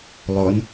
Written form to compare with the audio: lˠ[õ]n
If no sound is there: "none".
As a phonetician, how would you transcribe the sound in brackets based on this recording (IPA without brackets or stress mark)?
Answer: o